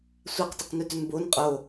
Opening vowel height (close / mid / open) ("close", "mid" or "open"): open